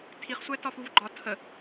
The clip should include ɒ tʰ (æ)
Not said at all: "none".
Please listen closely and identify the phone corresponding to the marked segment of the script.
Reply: ə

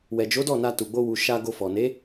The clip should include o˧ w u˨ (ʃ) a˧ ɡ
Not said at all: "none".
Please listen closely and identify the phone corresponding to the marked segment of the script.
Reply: ʃ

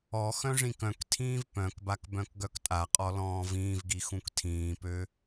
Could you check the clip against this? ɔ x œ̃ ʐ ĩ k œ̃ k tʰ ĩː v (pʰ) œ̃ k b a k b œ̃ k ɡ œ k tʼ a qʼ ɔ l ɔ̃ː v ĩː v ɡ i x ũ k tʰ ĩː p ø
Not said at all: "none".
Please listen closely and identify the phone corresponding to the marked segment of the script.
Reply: p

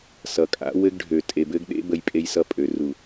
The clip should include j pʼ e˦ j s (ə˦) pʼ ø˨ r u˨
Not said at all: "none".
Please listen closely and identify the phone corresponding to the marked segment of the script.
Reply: ʌ˦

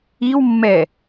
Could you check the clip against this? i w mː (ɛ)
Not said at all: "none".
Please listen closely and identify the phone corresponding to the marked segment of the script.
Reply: ɛ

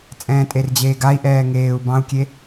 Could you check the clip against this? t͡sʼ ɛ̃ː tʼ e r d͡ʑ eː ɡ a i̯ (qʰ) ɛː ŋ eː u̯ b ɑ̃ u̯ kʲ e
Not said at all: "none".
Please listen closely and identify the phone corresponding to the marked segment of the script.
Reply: ʔ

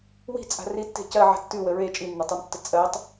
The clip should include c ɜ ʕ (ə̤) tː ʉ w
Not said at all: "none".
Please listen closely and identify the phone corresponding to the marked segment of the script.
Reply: ə̤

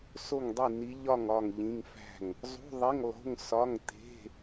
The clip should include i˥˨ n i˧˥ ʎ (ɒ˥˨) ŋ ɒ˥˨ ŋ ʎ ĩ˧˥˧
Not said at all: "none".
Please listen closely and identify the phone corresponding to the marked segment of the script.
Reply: ɒ˥˨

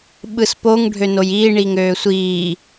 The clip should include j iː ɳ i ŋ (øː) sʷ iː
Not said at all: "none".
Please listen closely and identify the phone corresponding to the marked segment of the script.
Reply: øː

